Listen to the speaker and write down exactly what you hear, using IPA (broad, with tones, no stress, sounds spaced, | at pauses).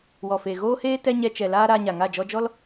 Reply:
w ɔ˨ f e˨ ɣ oː˦ h eː˦ t ɛ˦ ɲ ɛ˧ t͡ʃ ɛ˨ l aː˦ ɾ aː˧ ɲ a˨ ŋ a˦˨ d͡ʒ ɔ˧ d͡ʒ ɔ˦ l